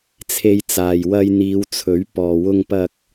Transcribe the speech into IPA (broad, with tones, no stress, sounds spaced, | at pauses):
t͡sʰ e˧ j t͡s aː˨ j w ɐ˧ j n̪ iː˨˧ w t͡sʰ ɵ˨˥ ɥ p ɔː˨ w ʊ˧ ŋ p ɐ˧ k̚